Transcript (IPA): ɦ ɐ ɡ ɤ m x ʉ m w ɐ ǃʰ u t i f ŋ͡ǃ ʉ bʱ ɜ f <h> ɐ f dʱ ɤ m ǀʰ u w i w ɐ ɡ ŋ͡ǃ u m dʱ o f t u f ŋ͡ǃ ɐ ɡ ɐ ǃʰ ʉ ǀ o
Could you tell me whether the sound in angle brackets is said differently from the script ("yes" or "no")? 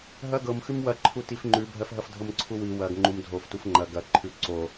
yes